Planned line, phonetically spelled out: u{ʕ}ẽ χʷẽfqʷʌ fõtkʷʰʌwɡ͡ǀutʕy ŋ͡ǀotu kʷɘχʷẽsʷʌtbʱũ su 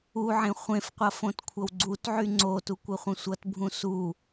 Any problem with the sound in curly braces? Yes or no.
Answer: no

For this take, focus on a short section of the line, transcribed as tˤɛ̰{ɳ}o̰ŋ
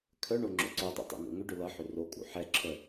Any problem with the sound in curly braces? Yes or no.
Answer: yes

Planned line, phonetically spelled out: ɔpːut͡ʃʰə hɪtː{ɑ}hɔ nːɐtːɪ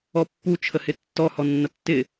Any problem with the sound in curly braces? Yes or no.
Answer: yes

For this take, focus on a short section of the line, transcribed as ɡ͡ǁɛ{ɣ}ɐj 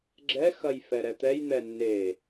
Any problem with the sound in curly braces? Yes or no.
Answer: yes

